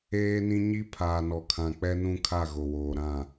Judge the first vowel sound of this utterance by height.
mid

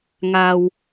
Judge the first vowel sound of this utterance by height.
low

